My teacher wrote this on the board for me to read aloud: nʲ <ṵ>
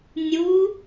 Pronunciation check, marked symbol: incorrect: u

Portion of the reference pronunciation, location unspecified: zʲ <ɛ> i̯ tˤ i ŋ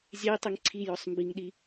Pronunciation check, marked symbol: correct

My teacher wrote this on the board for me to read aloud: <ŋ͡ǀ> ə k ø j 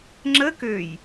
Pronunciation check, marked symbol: incorrect: ŋ͡ǁ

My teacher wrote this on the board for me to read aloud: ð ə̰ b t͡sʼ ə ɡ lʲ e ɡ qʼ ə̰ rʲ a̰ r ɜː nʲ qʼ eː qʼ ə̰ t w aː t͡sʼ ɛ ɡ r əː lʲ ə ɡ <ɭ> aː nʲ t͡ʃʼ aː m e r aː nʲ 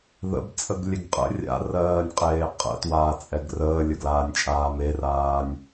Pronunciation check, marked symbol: incorrect: l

